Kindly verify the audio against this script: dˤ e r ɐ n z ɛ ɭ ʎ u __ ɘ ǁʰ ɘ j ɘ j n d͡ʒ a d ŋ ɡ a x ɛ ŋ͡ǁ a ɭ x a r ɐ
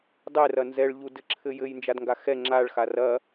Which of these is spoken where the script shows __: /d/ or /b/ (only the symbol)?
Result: d